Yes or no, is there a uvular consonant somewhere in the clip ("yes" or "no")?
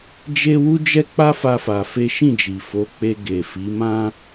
no